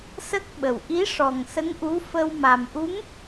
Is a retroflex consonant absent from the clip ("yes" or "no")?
no